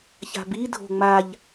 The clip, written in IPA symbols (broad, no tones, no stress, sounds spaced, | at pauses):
ç a̤ b i dʱ o̤ ŋ͡m a ʎ